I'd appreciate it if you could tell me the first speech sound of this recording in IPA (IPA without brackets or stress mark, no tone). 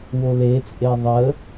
w